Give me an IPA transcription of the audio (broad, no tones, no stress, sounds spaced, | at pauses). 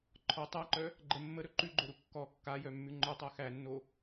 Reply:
ǃʰ ɔ tˤ æ ǃ œ | ɡ͡ǃ ə mː ə ɾ ɵ ǃ ʉ ɡ͡ǃ o ɾ u kː ɔ kː a j œ mː ʉ ŋ͡ǃ œ tˤ æ x æ nː o